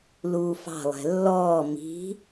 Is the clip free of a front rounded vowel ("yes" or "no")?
yes